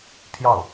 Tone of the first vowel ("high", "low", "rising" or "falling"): falling